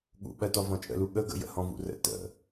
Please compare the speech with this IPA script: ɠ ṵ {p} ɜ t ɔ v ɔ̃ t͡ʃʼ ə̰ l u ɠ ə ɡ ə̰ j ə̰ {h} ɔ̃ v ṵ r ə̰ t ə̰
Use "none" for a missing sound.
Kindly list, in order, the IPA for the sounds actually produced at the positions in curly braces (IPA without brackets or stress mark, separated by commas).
ɓ, h